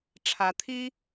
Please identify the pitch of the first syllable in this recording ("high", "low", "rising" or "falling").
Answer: rising